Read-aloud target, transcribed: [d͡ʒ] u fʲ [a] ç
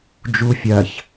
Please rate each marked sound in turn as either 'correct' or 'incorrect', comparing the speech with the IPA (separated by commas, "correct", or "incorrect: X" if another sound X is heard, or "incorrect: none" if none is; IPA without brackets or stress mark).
correct, incorrect: ɐ